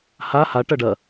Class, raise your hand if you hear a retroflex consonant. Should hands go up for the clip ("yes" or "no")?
yes